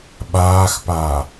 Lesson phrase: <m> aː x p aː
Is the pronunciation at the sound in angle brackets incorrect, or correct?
incorrect